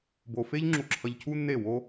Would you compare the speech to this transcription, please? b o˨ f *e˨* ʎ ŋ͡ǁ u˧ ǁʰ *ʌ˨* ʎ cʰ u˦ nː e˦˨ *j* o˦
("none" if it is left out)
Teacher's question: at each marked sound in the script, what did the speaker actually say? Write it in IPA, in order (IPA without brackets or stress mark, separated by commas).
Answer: e˦, ʌ˧, w